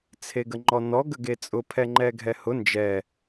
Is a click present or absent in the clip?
present